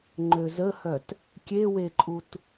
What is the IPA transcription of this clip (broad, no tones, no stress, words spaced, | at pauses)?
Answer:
ŋ͡ǃøzəhœt | kʲeweǃʼut